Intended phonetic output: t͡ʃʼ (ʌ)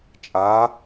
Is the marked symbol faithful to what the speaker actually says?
no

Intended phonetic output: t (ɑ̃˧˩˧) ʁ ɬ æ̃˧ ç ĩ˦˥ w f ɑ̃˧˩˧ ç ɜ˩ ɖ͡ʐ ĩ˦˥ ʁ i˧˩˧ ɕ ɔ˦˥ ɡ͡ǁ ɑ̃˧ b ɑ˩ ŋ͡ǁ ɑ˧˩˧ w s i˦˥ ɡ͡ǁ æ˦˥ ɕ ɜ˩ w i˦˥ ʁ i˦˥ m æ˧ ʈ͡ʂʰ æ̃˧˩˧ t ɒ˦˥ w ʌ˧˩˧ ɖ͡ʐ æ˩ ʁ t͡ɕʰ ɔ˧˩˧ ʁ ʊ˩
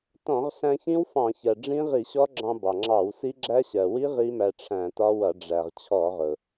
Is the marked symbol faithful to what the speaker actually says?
no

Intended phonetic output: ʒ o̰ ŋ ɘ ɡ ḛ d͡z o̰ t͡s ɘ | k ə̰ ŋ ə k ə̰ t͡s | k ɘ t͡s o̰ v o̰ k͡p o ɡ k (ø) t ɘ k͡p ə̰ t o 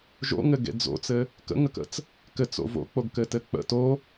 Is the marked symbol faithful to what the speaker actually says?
no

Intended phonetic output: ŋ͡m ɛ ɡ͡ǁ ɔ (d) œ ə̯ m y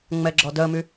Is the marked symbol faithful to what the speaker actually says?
yes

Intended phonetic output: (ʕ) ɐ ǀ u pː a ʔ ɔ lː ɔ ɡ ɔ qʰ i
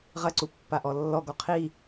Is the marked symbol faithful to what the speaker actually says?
no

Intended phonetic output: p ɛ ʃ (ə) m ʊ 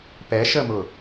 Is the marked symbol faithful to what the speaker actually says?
yes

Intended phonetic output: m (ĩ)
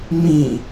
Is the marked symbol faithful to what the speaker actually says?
yes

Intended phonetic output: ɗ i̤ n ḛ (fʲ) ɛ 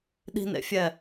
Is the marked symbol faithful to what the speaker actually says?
yes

